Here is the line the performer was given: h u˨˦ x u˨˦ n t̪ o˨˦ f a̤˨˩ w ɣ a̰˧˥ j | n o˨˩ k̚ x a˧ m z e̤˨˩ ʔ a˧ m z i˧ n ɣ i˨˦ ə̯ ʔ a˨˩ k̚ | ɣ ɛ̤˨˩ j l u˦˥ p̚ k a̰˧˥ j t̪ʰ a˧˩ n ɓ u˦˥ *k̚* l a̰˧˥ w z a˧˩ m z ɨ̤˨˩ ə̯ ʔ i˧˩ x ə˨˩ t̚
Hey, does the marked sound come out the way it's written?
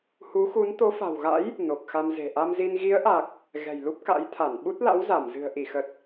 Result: no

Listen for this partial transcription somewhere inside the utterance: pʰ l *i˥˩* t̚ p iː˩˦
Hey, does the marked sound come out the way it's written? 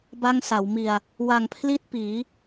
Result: yes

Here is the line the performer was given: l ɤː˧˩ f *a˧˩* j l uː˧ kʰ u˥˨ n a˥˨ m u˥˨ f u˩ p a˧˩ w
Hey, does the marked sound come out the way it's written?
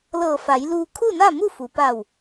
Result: no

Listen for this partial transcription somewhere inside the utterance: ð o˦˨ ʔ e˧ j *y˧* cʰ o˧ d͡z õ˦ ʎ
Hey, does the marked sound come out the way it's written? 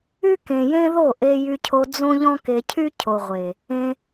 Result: yes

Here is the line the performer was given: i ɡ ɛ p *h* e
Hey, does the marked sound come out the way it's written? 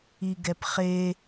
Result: no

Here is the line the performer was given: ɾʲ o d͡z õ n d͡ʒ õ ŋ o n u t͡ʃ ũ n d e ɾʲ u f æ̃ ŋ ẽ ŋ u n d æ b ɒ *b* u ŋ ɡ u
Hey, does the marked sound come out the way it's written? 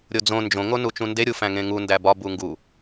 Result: yes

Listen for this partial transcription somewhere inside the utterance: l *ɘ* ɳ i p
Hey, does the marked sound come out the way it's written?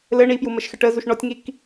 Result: yes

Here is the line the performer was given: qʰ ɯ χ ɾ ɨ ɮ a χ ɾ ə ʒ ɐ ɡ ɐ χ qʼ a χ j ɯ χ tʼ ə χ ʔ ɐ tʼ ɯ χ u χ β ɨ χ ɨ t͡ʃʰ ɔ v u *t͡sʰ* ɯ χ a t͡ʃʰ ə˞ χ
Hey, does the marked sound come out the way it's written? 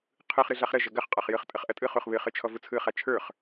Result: yes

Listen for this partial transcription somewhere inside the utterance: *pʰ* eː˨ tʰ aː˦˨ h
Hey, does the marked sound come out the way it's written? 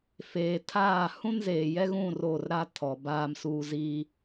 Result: no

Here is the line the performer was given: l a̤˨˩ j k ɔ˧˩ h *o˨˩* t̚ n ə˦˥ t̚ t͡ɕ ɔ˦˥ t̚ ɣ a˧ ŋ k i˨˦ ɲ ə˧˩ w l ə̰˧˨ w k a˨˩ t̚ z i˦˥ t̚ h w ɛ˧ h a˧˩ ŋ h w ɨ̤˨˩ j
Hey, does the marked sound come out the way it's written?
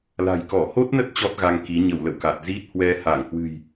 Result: no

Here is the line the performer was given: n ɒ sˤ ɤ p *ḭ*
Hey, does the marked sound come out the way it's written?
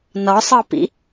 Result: yes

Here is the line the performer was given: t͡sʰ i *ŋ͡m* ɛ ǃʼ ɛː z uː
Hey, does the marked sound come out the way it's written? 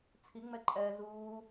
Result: yes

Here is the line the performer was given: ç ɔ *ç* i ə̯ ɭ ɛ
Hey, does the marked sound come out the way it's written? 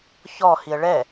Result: no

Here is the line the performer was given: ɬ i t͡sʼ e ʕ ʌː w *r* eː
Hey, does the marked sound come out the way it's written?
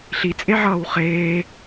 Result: no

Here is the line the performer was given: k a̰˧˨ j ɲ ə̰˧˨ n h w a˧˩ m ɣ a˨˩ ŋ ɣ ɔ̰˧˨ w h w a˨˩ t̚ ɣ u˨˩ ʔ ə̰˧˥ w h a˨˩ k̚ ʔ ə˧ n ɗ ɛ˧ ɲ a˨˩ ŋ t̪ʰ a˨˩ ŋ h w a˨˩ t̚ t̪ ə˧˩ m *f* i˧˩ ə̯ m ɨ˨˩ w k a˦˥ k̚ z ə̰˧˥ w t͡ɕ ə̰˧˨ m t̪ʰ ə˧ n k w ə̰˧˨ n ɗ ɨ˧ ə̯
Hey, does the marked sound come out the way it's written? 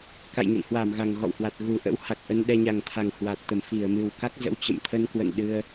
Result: yes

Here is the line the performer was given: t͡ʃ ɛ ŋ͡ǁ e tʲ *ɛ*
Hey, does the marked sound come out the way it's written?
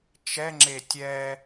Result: yes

